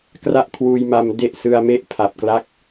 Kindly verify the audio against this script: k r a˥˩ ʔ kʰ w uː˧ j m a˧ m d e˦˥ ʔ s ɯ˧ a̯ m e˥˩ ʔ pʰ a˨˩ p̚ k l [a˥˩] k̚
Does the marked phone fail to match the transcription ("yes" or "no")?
yes